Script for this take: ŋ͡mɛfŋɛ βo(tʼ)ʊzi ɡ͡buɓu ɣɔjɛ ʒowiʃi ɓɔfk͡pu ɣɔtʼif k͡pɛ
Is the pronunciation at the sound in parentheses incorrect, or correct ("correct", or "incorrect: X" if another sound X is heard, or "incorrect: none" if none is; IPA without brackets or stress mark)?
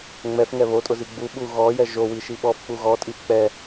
correct